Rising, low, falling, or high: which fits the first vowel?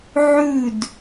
falling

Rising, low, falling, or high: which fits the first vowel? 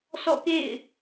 falling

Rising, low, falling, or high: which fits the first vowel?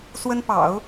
high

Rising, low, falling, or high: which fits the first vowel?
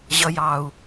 low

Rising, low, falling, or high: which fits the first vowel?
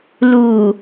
low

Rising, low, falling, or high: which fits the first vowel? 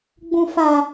low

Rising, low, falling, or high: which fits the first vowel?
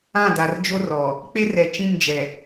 falling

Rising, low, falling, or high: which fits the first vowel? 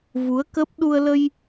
rising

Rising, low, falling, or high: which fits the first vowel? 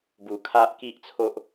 low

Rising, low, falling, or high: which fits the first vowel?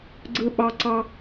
high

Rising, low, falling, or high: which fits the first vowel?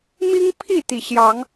high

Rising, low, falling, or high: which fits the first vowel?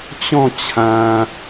falling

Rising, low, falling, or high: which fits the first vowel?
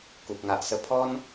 low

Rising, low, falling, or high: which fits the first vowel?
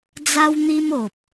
high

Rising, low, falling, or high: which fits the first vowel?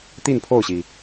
falling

